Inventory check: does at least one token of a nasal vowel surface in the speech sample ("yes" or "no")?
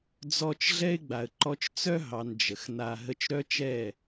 no